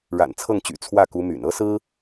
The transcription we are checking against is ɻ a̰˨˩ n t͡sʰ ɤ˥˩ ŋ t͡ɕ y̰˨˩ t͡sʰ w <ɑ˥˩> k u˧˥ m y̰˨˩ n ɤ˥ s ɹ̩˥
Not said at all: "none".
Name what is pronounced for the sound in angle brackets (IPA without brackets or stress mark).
ä˥˩